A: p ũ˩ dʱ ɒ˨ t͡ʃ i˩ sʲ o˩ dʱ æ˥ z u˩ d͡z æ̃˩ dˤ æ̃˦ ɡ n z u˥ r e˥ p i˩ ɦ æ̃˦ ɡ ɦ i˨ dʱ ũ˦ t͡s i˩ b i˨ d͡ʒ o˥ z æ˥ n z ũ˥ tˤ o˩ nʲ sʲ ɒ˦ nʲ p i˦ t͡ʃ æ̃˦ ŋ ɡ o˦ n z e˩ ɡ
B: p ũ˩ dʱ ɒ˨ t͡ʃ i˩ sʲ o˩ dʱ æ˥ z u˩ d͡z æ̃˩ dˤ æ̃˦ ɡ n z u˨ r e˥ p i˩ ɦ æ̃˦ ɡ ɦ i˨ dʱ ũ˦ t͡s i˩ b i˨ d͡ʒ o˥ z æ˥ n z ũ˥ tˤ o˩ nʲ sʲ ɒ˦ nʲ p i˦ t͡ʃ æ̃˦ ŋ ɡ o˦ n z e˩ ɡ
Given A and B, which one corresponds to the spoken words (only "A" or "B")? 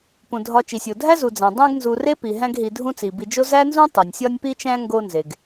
B